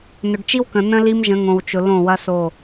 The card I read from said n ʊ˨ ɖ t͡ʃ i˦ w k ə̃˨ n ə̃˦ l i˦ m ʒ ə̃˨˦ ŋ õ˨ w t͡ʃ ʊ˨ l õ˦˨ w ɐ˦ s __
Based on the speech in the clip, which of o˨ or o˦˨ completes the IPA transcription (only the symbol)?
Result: o˦˨